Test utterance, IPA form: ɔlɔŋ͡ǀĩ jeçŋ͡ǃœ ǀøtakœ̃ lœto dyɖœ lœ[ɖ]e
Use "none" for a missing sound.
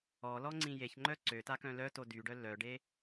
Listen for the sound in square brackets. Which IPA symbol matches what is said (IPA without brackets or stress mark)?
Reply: ɖ